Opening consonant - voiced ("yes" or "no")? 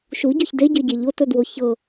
no